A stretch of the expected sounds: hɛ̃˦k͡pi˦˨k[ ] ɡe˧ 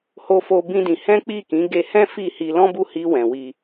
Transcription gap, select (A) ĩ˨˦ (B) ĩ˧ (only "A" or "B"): A